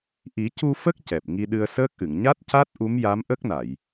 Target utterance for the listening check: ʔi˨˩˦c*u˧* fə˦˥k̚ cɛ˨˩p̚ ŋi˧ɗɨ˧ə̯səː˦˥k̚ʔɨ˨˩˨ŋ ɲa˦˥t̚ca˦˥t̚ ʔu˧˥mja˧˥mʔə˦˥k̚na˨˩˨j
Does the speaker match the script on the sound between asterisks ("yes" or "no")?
yes